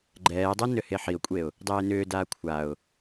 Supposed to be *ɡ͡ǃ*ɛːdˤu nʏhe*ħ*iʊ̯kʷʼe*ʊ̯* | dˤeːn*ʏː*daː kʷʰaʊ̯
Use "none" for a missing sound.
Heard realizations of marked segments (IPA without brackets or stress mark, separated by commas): ɡ͡ǃ, ħ, ʊ̯, ʏː